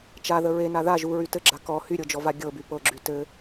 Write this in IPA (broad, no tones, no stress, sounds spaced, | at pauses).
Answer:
t͡ʃ a ð ə ɹ e n a ð a ʒ u ɹ y t ɘ ɡ͡ǁ a k ɔ h y ɾʲ ɤ d͡ʒ ɔ v a ɡʲ ɤ b y p ɤ ɡ͡ǁ y t ɘ